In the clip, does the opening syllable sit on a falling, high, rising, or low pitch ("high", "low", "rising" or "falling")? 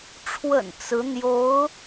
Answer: low